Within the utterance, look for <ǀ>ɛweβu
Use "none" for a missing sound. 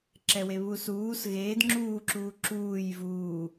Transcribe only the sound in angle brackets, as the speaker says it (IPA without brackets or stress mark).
ǁ